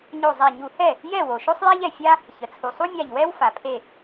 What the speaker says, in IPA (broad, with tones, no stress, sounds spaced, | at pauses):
ɲ o˧˩ zˤ æ˧˩ ɲ u˧˩˧ h ɛ˥˩ | j ɛ˥˩ w o˩ ʃ o˥ sˤ j æ˥ ʎ ɛ˩ fʲ a˥ | ç ə˩ t͡sʰ u˩ sˤ u˥ mʲ a˧˩ ʎ w ɛ˥ w f a˩ pʰ e˥˩